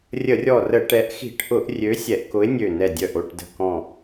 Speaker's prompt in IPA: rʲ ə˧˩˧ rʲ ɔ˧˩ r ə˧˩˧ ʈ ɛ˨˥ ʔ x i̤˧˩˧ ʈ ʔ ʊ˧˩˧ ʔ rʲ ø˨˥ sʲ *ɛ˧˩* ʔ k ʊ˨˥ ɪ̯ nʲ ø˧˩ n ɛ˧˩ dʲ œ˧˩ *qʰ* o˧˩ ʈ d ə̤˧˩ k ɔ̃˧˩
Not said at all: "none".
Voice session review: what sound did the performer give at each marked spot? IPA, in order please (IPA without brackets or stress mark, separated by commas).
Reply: ɛ˧˩˧, ʔ